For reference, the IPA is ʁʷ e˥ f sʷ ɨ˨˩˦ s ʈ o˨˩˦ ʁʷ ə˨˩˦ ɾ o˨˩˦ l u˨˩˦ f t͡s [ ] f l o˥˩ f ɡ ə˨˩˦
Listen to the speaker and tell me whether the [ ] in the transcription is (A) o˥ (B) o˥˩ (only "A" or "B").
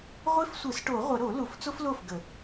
A